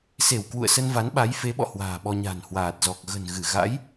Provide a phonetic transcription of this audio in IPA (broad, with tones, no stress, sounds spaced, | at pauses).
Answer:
s e˧˩ w k w ṵ˧˨ ə̯ s ə˧ n v a˨˦ n ɓ a˨˦ j f e˨˦ ɓ ɔ̰˧˨ h w a̤ː˨˩ ɓ ɔ˧ ɲ a̤˨˩ n h w aː˨˩ t̚ z ɔ˨˩ k̚ ɣ ə̤˨˩ n ɣ ɨ˧˩ ɣ a̰˧˥ j